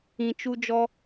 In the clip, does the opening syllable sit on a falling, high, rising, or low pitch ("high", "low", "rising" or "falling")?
low